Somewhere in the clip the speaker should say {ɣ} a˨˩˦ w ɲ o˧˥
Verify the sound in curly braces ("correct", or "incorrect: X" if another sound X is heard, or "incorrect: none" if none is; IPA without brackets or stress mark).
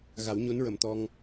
correct